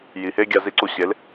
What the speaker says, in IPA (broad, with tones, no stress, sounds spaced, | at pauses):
j i˨ h e˦ ɡʲ a˧ z i˧ ǀ u˧ ɕ e˨˦ l